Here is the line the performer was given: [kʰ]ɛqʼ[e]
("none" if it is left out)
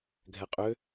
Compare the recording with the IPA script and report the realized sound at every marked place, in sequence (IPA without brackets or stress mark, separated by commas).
ɡʱ, ø